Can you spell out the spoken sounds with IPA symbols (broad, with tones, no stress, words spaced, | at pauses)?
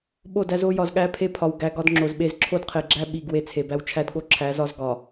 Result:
ɓo˦˨dæ˦z o˦ jɒ˨zɠæ˦pʰe˦pʰɒ˨w ɡæ˨ ɡɒ˦dŋ͡ǁo˨zɓe˦z ǁʰo˦dqʰe˨ɡ͡ǁæ˦ ɓi˨ɡ we˦t͡sʰe˨bæ˦w t͡ʃʰæ˦dɠo˦ǁʰæ˨˦zɒ˦z ɡɒ˨